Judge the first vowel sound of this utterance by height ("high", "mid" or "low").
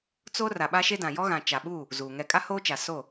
mid